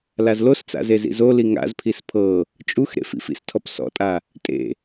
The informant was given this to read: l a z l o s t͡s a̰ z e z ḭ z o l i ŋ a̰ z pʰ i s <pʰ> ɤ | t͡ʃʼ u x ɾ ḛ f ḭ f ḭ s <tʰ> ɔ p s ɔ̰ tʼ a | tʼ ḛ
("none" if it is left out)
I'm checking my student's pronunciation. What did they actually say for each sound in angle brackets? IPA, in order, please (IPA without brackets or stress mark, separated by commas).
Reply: pʰ, tʰ